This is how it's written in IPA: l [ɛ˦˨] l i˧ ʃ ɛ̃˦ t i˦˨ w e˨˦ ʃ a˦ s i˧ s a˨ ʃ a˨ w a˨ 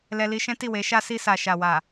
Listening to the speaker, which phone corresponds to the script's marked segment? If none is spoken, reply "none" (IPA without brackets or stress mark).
ɛ˧